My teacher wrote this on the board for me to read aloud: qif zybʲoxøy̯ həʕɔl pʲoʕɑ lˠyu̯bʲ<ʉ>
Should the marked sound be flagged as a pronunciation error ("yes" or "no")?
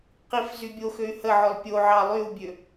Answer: yes